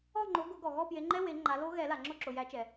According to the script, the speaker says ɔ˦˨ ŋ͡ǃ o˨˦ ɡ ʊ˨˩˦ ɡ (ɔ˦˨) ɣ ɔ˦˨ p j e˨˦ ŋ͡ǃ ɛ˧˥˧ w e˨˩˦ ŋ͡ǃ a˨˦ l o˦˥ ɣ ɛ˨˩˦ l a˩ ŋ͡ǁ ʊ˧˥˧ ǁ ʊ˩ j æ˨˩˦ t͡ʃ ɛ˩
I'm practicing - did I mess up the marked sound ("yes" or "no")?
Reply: yes